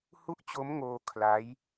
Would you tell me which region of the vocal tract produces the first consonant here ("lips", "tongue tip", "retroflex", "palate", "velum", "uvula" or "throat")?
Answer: throat